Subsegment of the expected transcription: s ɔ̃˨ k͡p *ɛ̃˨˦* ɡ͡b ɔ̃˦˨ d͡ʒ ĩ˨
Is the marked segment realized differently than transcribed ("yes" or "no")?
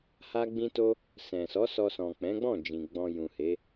no